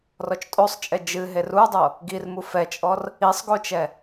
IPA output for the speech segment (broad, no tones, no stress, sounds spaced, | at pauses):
r ɔ t͡ʃ tʼ o sˤ t͡ʃʼ ɛ d͡ʒ ɨ ɦ e r u dˤ o | ɡ i r m u f ɛ t͡ʃʼ ɔ r | i sˤ ɡ o t͡ʃ ɛ